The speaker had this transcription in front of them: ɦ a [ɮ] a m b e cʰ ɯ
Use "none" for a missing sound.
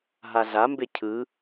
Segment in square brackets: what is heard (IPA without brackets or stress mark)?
ɮ